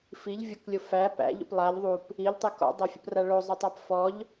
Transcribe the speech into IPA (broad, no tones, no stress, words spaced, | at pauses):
fiʎ vʲʊklʲʊ fæ pæ̰ʎṵp lˠaʎ ðˤup | iʎtˤik ɔ̰dˤæfʲṵpra ɭozˤʊtˤap fɔʎ